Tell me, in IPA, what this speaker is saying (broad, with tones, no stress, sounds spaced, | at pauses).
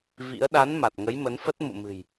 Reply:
v ḭ˧˥ ə̯ ɗ a˨˦ n m a˨˩ t̚ ŋ ə˨˦ j m ə˨˦ n f ə˦˥ t̚ m ṵ˧˨ m ɨ̤˨˩ j